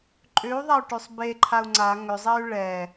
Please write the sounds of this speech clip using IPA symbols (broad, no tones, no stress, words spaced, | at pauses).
ǃʼʏu̯ðˤau̯ ʈøsˤbeǃʰau̯ ŋ͡ǀa ŋʏzˤɛy̯ ɭɛ